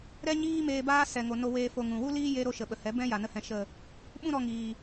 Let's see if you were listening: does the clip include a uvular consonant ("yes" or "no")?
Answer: no